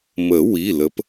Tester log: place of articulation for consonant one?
labial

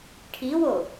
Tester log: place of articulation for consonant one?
retroflex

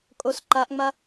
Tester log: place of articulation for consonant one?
velar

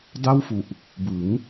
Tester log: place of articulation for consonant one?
alveolar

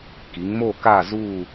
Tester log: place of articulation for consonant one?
velar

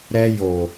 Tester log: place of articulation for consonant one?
alveolar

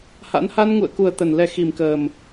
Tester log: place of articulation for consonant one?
glottal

